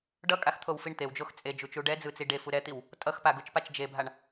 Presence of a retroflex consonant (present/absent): present